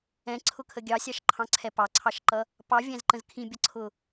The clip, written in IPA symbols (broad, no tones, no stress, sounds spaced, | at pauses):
ɛ̃ ǀʰ ʊ kʰ ə ɡʲ ɑ sʲ ɑ ʃ ǃʰ ɑ̃ ǀʰ ɛ p ɑ ǀʰ ɑ ʃ ǃ ʌ | p ɑ vʲ æ̃ z ǃ ə̃ z kʰ ĩ bʲ ʌ ǀʰ ʊ